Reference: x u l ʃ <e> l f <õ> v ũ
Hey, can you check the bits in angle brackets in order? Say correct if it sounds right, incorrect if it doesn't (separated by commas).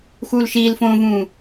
incorrect, correct